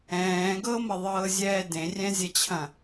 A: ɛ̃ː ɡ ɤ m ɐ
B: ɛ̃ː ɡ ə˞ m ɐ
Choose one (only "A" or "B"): A